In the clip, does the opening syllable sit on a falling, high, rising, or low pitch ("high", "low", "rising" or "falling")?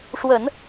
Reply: low